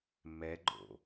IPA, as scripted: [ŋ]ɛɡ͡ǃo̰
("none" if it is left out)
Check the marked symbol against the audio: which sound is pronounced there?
m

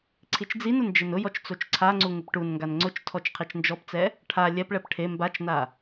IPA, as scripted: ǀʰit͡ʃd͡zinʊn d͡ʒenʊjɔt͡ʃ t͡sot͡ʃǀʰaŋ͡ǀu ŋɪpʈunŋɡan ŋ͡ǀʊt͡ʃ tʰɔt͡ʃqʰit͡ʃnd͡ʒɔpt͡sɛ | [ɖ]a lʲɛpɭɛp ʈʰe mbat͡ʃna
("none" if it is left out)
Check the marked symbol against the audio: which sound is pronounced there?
ʈʰ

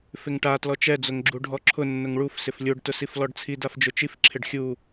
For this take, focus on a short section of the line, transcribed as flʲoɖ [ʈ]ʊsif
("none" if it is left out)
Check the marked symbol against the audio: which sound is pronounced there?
t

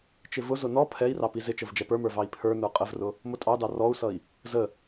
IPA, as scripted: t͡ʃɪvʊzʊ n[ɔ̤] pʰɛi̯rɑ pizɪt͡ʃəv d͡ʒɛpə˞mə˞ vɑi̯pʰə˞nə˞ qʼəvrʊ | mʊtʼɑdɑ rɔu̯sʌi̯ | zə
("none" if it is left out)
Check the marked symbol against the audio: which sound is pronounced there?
ɔ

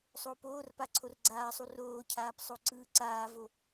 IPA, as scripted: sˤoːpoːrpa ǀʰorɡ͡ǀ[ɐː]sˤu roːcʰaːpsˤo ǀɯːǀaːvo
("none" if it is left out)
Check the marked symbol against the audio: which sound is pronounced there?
aː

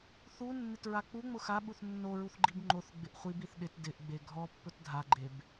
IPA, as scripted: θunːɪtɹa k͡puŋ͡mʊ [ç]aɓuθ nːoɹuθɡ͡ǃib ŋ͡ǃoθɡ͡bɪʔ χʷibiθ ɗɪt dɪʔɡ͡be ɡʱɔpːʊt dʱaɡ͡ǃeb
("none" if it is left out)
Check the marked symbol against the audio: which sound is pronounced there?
x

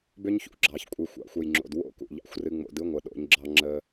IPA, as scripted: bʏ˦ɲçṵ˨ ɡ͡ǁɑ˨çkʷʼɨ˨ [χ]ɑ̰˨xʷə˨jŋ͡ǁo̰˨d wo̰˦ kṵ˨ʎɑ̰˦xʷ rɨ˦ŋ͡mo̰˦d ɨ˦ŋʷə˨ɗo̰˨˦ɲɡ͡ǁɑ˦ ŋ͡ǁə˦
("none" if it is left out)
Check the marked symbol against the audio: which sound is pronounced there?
xʷ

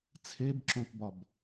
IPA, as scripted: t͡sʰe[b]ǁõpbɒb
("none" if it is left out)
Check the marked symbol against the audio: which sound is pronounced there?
b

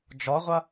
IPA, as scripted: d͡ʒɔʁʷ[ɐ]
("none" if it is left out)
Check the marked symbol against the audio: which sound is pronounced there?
ɐ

